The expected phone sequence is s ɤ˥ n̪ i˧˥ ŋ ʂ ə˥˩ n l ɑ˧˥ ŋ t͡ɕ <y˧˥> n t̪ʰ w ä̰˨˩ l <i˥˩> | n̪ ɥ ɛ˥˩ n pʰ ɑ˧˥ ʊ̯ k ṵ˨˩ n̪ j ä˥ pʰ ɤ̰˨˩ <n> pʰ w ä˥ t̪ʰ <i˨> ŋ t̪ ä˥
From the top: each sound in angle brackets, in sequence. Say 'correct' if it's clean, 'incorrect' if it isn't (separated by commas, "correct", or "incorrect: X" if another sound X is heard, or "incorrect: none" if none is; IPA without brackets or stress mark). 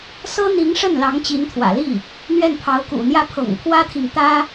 incorrect: i˧˥, correct, incorrect: ŋ, correct